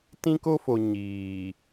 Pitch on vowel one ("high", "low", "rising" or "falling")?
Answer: high